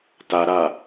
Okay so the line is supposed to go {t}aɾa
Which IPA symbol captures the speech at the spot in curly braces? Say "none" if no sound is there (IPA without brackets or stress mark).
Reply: t